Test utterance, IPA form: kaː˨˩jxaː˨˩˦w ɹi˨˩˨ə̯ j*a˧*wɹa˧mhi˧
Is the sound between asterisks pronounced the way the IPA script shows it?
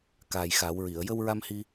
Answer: no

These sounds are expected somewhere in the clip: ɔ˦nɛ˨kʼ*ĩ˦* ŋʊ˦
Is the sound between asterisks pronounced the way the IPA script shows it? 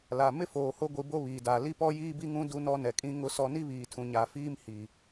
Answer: yes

